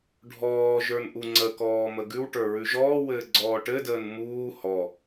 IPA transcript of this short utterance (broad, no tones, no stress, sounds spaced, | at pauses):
ɖʱ ɔː ʒ ə˞ n ʔ u ŋ͡ǀ ə k ɔː m ə ɡ ʉ w ʈ ə˞ ɹ ʉ ʒ ɔː w ɘː ɡ͡ǀ ɔː ʈ ɘ d əː n m uː h ɔ